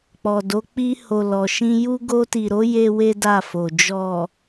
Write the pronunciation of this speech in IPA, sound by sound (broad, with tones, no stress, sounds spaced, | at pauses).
k͡p ɔ˨ d o˨˦ k͡p i˧ h o˨ l ɔ˨ ʃ ĩ˧ j u˦ ɡ o˧ t i˨ ɾ o˨˦ j e˦ w e˦ d a˦˨ f o˨ d͡ʒ ɔ˨